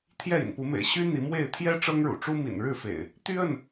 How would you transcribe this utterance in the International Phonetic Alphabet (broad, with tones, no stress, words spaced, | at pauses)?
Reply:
t̪ʰjɛ˥˨ḭ˨˩npu˨˦mḛ˨˩ɪ̯ ɕy˦ n̪i˨˦mwe˥˨ɪ̯ t̪ʰjɛ˦ ʈ͡ʂɤ˦ŋɻṵ˨˩ʈ͡ʂu˦mḭ˨˩n ɻɻ̩˥˨fḛ˨˩ɪ̯ | t̪y˦ə˥˨n